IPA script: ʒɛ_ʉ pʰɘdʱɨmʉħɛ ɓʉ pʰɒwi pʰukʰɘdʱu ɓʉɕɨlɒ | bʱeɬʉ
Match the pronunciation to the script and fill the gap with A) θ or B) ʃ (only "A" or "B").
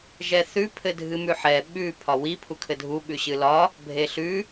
A